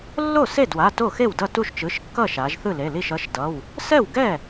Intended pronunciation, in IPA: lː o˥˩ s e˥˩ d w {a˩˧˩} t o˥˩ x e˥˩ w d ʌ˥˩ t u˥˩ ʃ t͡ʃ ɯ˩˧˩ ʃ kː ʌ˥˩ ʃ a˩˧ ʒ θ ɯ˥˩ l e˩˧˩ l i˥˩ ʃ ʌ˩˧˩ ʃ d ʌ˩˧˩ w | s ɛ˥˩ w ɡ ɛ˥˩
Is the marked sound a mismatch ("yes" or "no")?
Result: no